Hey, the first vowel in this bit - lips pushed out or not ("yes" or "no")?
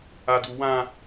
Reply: no